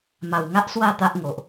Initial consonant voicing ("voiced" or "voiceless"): voiced